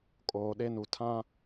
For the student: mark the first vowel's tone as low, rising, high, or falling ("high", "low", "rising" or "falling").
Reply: low